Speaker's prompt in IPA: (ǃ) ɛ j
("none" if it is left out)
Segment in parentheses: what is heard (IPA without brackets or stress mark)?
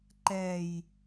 ǃ